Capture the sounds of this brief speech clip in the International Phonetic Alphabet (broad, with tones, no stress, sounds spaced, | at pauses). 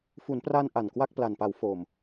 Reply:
f u˩˦ n p r a˧ n ʔ a˨˩ n k w a˥˩ k̚ p l a˨˩ n p a˩˦ w f o˨˩ m